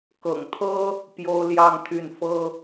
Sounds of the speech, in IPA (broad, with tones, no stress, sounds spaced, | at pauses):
k ɤ̰˨˩ ŋ t̪ʰ ɤ˥ | p j o˥ ʊ̯ l j ɑ˥˧ ŋ t̪ʰ y˥˩ n f ɤ˥